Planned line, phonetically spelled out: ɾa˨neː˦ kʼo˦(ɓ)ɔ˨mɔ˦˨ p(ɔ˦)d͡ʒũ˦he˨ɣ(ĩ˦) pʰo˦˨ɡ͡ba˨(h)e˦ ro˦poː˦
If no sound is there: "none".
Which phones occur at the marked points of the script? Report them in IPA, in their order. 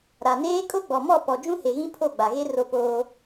ɡ͡b, ɔ˨, ĩ˦, ɣ

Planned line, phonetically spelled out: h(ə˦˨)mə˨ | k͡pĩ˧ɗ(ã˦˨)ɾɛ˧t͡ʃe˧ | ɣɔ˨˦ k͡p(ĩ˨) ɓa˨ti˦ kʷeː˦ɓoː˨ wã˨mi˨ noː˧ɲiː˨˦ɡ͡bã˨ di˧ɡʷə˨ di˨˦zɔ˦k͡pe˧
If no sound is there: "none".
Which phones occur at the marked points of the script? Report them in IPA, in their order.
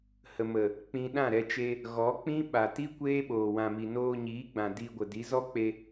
ə˨, ã˦˨, ĩ˦

